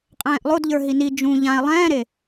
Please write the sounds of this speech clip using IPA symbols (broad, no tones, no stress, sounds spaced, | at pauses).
qʼ ɛ̃ː ʔ lˠ o d ʎ ə˞ ɦ i n i d͡ʒ ũ ʎ ã e̯ lˠ ɛ̃ː ɾ e